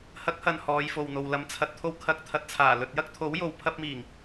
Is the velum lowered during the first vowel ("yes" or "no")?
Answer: no